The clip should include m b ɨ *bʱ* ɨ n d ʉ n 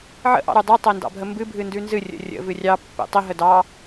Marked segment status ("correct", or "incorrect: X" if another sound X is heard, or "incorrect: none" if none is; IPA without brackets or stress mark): correct